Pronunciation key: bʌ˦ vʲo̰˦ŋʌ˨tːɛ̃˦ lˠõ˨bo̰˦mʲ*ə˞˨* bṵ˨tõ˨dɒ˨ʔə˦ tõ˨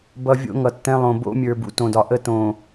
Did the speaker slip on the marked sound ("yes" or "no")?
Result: no